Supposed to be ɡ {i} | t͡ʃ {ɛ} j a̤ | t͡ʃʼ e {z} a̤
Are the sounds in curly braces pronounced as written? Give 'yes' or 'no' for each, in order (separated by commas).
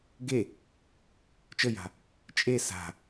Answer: no, no, no